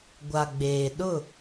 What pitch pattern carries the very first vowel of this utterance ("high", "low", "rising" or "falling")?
low